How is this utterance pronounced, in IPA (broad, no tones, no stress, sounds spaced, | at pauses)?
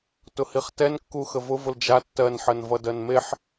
t ʊ h i χ t ɛ n kː u x ə v ʊ v ʊ l d͡ʒ a tː ɜ n ħ ɜ n v ʌ d ɜ n m e ħ